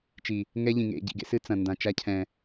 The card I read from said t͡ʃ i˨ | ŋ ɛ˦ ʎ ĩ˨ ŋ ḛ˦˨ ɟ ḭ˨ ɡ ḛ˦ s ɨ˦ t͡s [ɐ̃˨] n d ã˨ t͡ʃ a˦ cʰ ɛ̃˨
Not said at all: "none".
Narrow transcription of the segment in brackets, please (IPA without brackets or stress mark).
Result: ɐ̃˨